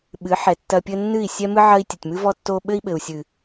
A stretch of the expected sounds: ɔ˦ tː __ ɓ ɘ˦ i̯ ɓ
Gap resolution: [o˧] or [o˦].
o˦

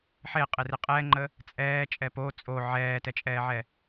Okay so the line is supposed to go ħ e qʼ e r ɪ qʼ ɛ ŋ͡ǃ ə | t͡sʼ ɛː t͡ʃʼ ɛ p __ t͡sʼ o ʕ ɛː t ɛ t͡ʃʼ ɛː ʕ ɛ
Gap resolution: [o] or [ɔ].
o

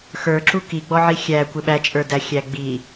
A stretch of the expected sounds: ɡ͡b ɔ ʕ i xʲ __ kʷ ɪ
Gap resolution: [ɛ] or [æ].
æ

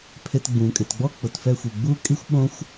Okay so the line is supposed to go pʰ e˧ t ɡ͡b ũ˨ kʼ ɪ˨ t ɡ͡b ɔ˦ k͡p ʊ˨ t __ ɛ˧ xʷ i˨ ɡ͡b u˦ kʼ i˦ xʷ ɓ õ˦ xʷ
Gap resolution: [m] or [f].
f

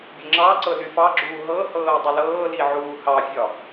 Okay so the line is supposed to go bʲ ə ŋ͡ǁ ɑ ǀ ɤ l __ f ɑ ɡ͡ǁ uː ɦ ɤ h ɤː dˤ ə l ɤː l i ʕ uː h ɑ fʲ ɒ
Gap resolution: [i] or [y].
y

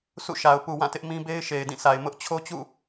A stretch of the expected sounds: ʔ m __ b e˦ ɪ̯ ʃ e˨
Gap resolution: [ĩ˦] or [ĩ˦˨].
ĩ˦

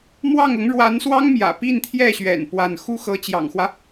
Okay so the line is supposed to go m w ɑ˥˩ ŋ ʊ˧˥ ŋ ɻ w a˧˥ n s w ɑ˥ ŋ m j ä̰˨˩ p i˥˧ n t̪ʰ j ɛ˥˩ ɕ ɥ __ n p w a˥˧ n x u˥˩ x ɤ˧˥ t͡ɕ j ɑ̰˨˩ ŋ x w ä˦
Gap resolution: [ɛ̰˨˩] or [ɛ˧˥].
ɛ̰˨˩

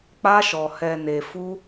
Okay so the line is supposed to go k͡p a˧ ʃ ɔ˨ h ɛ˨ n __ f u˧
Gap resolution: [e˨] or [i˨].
e˨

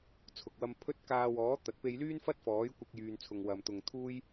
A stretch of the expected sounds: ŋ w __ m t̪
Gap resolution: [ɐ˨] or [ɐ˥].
ɐ˨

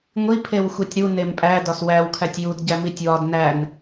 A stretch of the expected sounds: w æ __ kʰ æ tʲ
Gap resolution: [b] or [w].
w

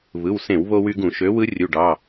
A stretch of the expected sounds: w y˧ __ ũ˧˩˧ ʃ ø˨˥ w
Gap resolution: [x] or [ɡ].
ɡ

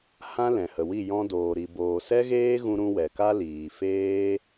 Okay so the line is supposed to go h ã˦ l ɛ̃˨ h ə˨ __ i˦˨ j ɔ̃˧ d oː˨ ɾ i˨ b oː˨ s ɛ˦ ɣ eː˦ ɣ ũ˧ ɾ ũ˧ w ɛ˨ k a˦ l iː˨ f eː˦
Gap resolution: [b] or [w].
w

